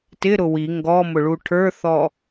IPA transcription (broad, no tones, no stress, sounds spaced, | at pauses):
t ɪ ɾ ʊ w i ŋ ɡ ɔ m ʊ ɭ u ʈʰ ə˞ θ ɔ